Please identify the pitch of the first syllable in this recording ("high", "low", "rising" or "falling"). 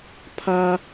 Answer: high